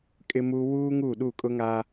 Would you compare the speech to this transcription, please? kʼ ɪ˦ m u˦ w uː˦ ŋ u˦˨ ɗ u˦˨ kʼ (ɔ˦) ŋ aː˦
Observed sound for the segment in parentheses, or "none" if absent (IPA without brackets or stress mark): ʊ˦